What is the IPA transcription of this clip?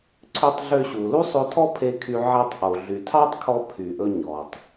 ǀʰø˧tˤɮø˧ɕu˩ lu˥sˤo˧tʰɔ˥pʰe˧ kʰy˧ ʕæ˧tˤʔo˩ ɮy˩tʰɑ˥tˤkʰɔ˧ pʰy˩ʔɵ˧ ɲɔ˩tˤ

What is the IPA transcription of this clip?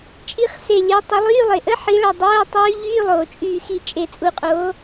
t͡ʃʼi˧˥˧χse˧˩lʲo˨˥ tˤə˩˧lˠyː˧˥˧lˠe˩ʔə˦˥ ħi˨˥ɭʌ˧˩dˤoː˧˥˧tˤyː˦˥ ʎyː˧˥˧lˠoː˩t͡ʃʼyː˧˩xi˧˩ t͡ʃʼe˧˩t͡sʼu˧˩qʼoː˨˥

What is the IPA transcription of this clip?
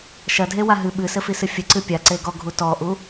ʃɐdʱe waɦɨ ɓɨsɘ fisɨfʲɘǀɨ pʲa ǀeɡɔɡʱu tɔʔu

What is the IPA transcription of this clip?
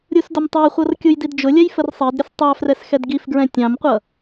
ɾʲusdʊmtˤæχʷʌr kʲujdidd͡ʒʊlʲɛj fərsˤɜdɾʲəs tˤɑfrɛs xɛdɡifɡɹɛ̃ tʲɑ̃mqʷʌ

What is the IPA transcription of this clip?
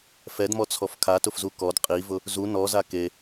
fɛdmɔt͡sʰɔf kʰatʊfzu kɔd qʼivʊ | zu nɔza ke

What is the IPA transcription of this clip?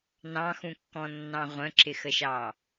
nɑ̃xũkːɔ̃nːɑ̃ ʁʷə̃ǁɪxəʃɑ

